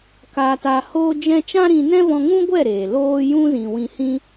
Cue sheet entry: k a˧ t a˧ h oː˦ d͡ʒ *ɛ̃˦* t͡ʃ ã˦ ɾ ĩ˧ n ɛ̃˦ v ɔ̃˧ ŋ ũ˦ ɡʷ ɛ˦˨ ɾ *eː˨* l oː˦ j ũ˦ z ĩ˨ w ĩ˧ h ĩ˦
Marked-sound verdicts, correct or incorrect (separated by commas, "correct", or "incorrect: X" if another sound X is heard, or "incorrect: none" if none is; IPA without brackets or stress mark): correct, correct